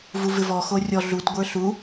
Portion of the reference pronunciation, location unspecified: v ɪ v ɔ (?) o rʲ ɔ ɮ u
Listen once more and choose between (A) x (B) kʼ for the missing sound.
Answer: A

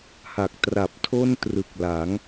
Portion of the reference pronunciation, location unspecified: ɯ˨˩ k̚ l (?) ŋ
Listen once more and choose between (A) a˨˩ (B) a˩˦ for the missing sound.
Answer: B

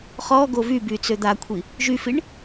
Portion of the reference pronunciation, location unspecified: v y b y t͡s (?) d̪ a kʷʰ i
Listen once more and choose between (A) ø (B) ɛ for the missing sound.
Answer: A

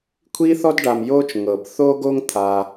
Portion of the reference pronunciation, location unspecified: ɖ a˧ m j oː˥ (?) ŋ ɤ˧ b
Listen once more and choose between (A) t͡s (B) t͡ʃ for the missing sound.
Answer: B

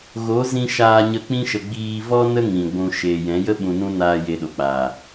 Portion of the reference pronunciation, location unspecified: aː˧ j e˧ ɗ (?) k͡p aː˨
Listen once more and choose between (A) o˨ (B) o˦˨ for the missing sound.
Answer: A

